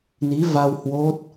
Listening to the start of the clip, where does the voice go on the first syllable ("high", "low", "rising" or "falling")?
rising